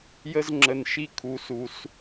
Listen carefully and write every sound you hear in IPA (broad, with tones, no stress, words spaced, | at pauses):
jə˦zŋ͡ǁə˨n ʃi˦ kʰu˨su˨s